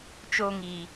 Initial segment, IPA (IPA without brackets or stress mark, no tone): t͡ʃ